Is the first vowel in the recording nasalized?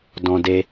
yes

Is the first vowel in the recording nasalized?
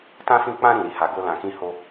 yes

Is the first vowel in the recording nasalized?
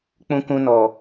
yes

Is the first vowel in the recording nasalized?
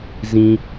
yes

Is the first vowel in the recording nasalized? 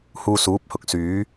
no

